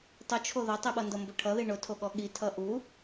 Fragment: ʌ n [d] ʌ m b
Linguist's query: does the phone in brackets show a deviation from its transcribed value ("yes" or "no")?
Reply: no